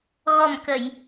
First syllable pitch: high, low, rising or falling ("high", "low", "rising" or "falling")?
low